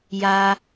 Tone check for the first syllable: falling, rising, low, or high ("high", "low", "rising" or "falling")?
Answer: high